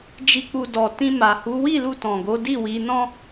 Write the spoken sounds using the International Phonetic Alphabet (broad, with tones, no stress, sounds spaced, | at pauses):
d͡ʒ i˧ k͡p u˧ d ɔ˨ t ĩ˧ m a˨ h u˨˦ w i˦˨ l u˧ t ɔ̃˨ ɡ o˨˦ d i˦˨ w i˨˦ n ɔ̃˦